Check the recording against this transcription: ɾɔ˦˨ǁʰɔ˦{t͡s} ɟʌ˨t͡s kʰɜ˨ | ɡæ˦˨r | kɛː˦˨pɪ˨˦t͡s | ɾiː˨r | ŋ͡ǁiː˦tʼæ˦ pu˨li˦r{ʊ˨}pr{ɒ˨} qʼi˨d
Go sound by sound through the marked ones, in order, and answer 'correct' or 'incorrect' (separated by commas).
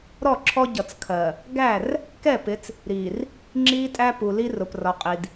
incorrect, correct, correct